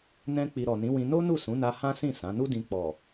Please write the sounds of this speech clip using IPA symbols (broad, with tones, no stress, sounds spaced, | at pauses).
n ɛ̃˦ k͡p i˧ ɾ ɔ˨ n ĩ˨˦ w ĩ˧ n o˦ n u˦˨ s ũ˨˦ n a˧ h ã˦ s ĩ˦˨ s ã˨˦ n u˦ d ĩ˧ k͡p ɔ˨